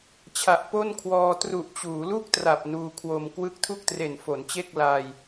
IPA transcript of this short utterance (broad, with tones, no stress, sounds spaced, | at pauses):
t͡ɕʰ a˨˩ ʔ p o˥˩ n kʰ w ɔː˧ t r u˨˩ ʔ t͡ɕ uː˩˦ l u˥˩ k̚ t r a˨˩ p̚ n uː˧ kʰ w o˧ m k w ɯ˥˩ k̚ tʰ u˥˩ k̚ t r e˨˩ n f o˩˦ n t͡ɕ e˥˩ k̚ l aː˧ j